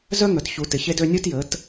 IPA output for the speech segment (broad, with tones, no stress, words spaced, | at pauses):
zœ˦ŋœ˨tçu˨ tɪ˨çe˦dø˦ nʲu˦tjə˨˦t